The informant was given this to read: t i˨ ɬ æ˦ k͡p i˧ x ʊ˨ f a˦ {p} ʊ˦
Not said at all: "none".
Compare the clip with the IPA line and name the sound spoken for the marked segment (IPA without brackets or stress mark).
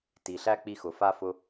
f